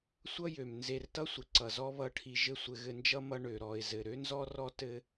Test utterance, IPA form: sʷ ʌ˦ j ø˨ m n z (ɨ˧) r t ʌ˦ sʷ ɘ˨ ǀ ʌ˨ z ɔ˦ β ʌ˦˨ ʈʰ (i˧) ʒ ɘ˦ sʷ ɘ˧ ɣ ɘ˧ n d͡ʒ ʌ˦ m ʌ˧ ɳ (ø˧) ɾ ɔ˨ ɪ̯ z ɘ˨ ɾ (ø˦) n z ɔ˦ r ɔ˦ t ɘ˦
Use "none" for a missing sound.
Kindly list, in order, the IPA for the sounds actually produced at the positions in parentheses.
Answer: e˧, i˧, ø˨, ø˦

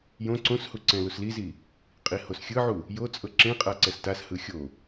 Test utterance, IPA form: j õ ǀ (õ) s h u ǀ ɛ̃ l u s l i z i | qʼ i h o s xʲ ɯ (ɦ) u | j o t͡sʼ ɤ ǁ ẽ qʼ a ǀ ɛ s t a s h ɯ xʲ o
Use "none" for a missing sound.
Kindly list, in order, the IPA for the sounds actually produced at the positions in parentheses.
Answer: õ, ʕ

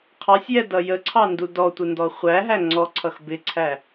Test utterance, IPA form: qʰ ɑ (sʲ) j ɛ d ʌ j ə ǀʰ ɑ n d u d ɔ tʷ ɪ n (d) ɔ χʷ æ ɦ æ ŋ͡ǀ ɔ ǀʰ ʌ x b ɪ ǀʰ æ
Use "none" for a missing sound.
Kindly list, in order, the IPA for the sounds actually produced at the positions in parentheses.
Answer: sʲ, d

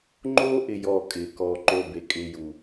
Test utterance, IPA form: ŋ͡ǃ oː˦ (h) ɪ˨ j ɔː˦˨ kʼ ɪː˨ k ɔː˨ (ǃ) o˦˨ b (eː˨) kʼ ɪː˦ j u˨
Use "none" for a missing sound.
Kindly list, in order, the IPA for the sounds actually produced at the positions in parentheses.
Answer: ʔ, ǃ, e˨

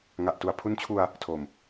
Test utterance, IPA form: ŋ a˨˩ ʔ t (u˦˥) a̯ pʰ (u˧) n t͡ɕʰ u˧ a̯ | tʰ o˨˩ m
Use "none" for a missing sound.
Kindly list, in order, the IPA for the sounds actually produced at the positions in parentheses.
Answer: u˨˩, u˦˥

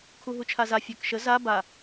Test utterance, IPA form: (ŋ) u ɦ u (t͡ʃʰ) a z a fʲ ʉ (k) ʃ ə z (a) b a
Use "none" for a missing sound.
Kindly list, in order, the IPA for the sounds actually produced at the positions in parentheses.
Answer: kʰ, t͡ʃʰ, k, a

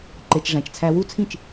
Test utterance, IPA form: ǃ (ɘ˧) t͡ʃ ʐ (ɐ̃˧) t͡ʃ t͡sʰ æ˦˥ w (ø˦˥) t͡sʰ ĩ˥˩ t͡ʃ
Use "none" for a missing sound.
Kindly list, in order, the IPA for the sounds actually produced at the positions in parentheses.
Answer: e˧, æ̃˧, u˦˥

